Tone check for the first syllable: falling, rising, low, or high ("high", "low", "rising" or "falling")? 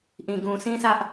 low